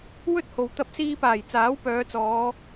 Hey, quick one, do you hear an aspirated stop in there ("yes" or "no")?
no